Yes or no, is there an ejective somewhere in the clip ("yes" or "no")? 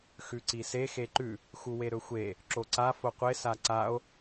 no